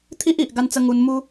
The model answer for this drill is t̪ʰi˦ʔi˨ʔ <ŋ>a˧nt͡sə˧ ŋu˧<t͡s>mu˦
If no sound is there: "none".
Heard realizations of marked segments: ɡ, n

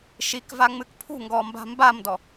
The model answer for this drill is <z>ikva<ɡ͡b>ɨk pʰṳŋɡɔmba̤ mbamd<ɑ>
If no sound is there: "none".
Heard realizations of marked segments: ʃ, ŋ͡m, ɔ

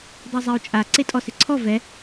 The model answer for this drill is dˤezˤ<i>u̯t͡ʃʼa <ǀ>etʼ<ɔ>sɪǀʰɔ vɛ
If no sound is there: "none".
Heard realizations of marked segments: e, ǀ, ɔ

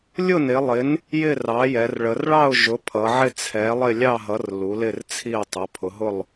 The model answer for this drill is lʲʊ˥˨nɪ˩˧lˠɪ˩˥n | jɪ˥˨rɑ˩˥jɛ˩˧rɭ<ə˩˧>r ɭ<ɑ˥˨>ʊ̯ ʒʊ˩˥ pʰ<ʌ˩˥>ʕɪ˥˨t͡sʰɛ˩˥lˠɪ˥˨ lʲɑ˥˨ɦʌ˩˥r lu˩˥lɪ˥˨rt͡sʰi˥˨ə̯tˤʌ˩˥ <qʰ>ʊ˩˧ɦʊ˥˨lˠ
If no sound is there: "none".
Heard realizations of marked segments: ə˩˧, ɑ˥˨, ʌ˩˧, pʰ

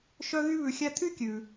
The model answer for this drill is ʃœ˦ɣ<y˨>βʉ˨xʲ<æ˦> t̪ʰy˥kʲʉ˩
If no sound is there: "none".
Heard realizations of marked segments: y˦, æ˦

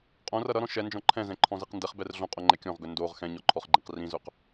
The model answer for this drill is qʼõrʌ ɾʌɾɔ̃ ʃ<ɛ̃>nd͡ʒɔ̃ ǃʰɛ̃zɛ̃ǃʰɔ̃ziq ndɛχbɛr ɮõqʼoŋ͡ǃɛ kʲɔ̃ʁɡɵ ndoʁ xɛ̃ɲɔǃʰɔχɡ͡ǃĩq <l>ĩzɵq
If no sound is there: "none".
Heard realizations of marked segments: ɛ, r

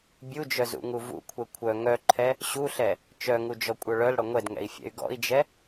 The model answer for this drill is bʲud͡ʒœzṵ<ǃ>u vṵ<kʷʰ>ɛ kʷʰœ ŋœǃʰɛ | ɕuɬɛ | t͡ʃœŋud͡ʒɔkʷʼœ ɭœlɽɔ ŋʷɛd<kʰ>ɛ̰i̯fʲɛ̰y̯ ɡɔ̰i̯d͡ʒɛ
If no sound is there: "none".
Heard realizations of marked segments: ŋ, kʷʰ, ŋ

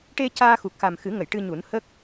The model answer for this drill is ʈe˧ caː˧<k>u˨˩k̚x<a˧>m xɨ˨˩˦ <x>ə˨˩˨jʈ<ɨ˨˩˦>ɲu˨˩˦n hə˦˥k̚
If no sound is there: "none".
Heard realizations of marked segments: x, a˨˩, ŋ, ɨ˧

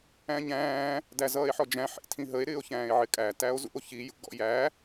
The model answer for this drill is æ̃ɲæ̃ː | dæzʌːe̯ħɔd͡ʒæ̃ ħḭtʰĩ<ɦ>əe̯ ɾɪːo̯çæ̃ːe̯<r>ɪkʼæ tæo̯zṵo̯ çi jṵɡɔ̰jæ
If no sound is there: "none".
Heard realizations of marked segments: ɦ, ʕ

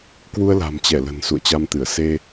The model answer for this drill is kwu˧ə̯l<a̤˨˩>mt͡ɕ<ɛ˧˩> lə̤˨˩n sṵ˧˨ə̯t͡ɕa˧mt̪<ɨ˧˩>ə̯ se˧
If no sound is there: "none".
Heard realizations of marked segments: a̤˨˩, ɛ˧˩, ɨ˧˩

